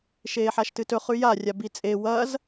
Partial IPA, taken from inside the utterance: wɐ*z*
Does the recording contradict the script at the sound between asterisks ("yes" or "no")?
no